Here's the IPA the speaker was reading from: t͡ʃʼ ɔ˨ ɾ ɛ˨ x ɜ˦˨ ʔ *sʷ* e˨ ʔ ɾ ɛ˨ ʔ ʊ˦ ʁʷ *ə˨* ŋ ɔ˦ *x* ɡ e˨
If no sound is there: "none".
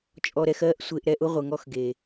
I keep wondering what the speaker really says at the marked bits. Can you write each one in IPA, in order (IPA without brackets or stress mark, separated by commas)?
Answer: sʷ, ə˨, x